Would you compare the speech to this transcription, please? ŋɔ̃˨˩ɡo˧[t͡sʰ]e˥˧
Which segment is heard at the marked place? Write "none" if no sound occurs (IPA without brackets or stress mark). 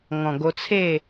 t͡sʰ